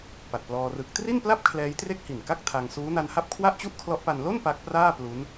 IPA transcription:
p a˨˩ t̚ p l ɔː˧ r ɯ˦˥ k̚ t r i˥˩ n p l a˥˩ p̚ kʰ l ɛː˦˥ j t r e˥˩ k̚ h i˨˩ n k a˥˩ k̚ tʰ a˧ ŋ s uː˦˥ n a˧ n h a˥˩ p̚ kʰ w a˥˩ ʔ t͡ɕ u˥˩ ʔ kʰ l ɔ˦˥ ʔ p a˧ n l o˥˩ n p a˦˥ k̚ p r aː˥˩ p l u˦˥ n

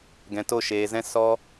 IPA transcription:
ɡ ɛ̃˨ t o˦˨ ʃ eː˨ z ɛ̃˦ s ɔ˦

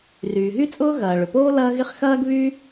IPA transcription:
r yː˩ ɦ y˥ t͡sʼ ʊː˥ ɣ ɐː˩ ɭ ʏ˩ p oː˥ l ɐː˥ ɣ ɪ˥ χ x ɐː˥ ɡ β y˥

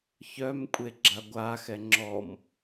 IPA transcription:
ç œ m kʷʼ e ɡ͡ǁ a ɡʷ a x ɛ ŋ͡ǁ ɔ m

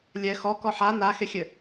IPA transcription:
lʲ ɛ x ɔ k ɔ ħ a n a x e xʲ ɘ

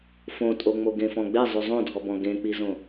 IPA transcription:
f õ tʼ o ŋ͡m o ɡ ẽ f ɔ̃ ɡ͡b e zˤ ʉ zˤ õ dʱ ɔ b ɔ̃ ɡ ẽ k͡p i z õ

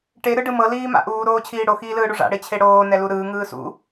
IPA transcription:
ʈ e ɾ ɯ ɖ ɯ m ɤ l iː m a̰ ʔ uː ɾ oː t͡ɕʰ iː ɽ o x iː l ɯː ɽ u ʐ a̰ ɽ e t͡ɕʰ e ɽ oː n ɛ l u ɾ ɯː ŋ ɯː s ṵ

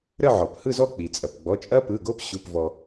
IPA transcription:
ɾ ə˥˧ ʕ ɔ˩ p h ɯ˥˧ z ɔ˥˧ k͡p i˩ t͡sʼ ɐ˩ p ɡ͡b ɔ˩˧˩ t͡ʃʼ ɐ˦˥ p ɯ˩˧˩ ɡ o˦˥ p ɕ u˩˧˩ p v ɔ˩

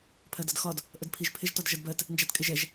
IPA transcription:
pʰ ɜ d ʌ d x ɒ d | ʔ ə d pʰ i ʒ pʰ ɪ ʒ t ɒ d ʒ ʌ d b ɜ t | n d͡ʒ æ t kʼ ɪ ʒ ɛ ʒ

